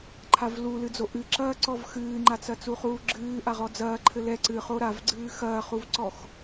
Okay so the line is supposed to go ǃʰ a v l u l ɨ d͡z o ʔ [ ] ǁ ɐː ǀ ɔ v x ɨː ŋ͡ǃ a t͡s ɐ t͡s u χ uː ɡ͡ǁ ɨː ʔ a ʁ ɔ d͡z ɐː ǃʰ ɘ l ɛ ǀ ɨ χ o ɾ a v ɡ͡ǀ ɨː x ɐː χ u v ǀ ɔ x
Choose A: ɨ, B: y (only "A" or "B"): A